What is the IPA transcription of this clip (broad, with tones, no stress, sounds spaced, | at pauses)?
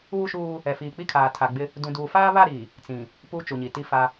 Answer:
uː˦ ʃ uː˦ | ɛ˨ f iː˨ k͡p i˦ kʰ aː˨ tʰ a˨ ɡ͡b ɪ˦ | d ũ˨ d uː˨ f aː˦ β a˦˨ ɾ i˨ | t͡s ĩ˨ | p uː˦ t͡ʃ u˨ ɲ i˨ t i˦˨ f a˦